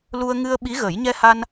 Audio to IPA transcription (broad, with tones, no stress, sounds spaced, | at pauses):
l u˧ ə̯ ŋ ɨ˧ ə̯ ɓ i˧˥ ɣ ə˨˩˦ j ɲ ɛ˧ h a˧ n